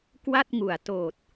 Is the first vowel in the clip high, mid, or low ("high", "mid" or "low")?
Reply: low